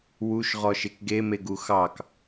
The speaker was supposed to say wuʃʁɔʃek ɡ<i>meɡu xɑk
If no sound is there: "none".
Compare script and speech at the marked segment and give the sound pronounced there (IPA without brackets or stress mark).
e